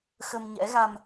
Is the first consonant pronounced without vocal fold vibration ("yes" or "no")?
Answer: yes